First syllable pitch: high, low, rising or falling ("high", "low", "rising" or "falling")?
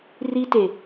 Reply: high